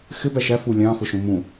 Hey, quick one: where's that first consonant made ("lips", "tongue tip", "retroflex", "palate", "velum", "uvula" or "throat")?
velum